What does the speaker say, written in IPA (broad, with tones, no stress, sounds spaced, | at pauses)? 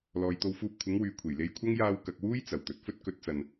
l ɔː˨ j t̪ o˧ w f uː˧ p̚ kʷʰ ɪ˨˥ ŋ w yː˨ kʷʰ e˨˩ j l e˧ j kʷʰ ɐ˥ ŋ j aː˧ w k ɐ˨ k̚ w uː˥ j t͡s ɐ˨˩ w t̪ ɵ˨ t̚ f ɵ˥ t̚ k ɵ˨˥ t̚ t͡s ɐ˨ n